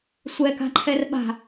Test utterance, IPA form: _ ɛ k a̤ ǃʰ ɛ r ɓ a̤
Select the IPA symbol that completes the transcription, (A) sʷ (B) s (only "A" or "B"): A